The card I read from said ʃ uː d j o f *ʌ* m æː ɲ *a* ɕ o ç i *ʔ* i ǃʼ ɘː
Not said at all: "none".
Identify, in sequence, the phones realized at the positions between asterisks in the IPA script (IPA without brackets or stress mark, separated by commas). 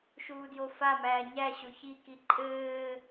a, æ, k